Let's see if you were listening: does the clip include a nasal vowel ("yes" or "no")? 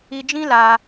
yes